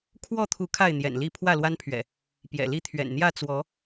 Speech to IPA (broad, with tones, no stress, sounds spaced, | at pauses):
kʰ w ɔ˥˨ t̪ʰ u˨˦ kʰ a˥˨ ɪ̯ n̪ j ɛ̰˨˩ n l i˥˨ pʰ w ä˥˨ l w a˦ n pʰ ɥ ɛ̰˨˩ | p j ɛ̰˨˩ l i˥˨ t̪ʰ ɥ ɛ̰˨˩ n n̪ j ä˥˨ t͡s w ɔ˨˦